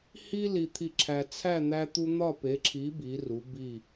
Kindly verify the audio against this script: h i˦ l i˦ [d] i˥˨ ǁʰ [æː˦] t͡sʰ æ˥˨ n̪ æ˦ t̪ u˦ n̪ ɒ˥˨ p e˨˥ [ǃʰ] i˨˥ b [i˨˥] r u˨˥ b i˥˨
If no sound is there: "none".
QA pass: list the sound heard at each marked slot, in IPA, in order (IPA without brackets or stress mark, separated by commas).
t̪ʰ, æ˦, ǁʰ, i˨˥